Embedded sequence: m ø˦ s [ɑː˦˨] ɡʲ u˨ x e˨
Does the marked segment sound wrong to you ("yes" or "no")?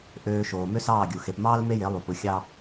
no